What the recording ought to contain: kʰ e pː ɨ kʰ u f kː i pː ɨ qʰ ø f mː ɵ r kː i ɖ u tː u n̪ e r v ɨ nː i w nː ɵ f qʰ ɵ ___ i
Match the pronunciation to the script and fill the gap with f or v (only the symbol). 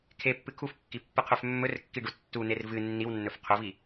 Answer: v